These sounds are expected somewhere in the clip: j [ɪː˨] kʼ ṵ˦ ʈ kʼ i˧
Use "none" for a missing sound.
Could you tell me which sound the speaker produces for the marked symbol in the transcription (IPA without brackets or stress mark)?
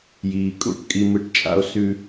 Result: iː˨